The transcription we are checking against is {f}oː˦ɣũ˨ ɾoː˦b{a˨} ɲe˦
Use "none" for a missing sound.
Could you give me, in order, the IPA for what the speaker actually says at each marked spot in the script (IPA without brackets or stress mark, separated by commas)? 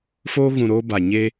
f, a˨